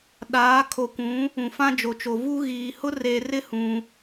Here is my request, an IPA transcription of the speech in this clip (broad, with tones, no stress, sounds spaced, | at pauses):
ɗ aː˨˦ kʰ o˨ kʷ ũ˨˦ | ũ˨ f ã˦ d͡ʒ o˨ t͡ʃ o˨ v u˦ ɣ iː˨ h ʊ˦ r e˨ r ɪ˦ h ũ˦